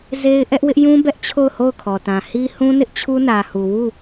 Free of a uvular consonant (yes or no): yes